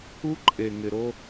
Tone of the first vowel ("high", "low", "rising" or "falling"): high